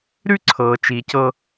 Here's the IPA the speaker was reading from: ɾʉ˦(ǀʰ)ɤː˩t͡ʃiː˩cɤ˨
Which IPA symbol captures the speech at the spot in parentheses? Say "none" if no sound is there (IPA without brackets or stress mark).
ǀʰ